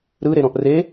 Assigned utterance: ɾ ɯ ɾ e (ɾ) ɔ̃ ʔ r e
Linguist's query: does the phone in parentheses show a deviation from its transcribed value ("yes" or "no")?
no